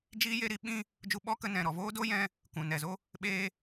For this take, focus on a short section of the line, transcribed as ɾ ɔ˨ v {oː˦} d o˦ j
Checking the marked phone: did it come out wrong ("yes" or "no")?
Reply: no